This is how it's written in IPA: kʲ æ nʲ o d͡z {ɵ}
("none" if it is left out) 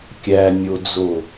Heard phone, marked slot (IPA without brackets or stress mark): o